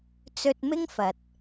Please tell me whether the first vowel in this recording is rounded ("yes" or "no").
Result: yes